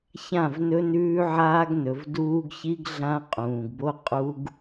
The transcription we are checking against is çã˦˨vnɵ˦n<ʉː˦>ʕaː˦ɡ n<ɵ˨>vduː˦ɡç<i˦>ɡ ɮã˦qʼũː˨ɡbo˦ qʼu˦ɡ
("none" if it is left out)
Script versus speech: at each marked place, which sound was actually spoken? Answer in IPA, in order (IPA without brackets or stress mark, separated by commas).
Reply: ʉː˦, ɵ˨, i˦